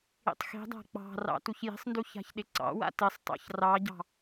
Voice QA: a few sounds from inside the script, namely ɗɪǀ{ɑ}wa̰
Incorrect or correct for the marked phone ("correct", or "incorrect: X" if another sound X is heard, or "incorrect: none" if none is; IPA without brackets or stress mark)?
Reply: incorrect: ɑ̰